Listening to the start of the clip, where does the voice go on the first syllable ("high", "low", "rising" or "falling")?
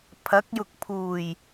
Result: rising